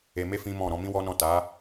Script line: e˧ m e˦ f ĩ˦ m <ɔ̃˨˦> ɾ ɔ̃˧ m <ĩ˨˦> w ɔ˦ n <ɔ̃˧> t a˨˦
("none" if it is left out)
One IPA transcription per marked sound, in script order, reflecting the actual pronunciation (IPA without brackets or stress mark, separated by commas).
ɔ̃˦˨, ĩ˦, ɔ̃˦˨